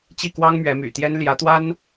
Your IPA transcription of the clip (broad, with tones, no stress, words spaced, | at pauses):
t͡ɕi˥˩kwɑ˥ŋ mɥɛ˧˥my̰˨˩t̪jɛ˥n ljä˧˥t̪wa˥n